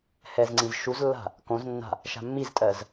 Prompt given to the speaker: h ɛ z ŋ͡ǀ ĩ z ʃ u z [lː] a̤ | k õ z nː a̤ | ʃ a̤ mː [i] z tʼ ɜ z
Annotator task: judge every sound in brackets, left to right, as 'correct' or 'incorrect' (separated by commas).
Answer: correct, correct